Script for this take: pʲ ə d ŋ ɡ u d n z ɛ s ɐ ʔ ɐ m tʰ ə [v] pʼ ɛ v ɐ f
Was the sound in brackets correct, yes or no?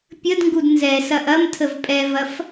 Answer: yes